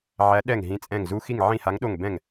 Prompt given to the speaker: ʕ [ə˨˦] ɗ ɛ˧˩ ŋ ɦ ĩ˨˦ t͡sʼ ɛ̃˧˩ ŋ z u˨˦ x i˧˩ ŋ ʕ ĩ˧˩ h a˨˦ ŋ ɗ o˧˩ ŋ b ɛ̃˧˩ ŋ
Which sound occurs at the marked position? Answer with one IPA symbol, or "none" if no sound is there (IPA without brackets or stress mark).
æ˨˦